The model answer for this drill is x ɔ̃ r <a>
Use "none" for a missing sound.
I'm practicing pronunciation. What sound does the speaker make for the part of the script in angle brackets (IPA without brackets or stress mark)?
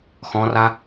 a